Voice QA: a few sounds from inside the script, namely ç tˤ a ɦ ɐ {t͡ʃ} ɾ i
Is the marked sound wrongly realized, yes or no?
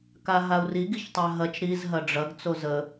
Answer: no